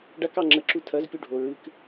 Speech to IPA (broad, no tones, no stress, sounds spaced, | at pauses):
ɖ a k ɑ ŋ͡ǁ ə ǁ u tʰ ɐ z pʲ u ɖʱ o ɹ ɨ k